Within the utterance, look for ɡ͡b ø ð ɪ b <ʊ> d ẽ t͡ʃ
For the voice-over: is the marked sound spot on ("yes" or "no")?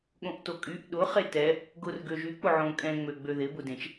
yes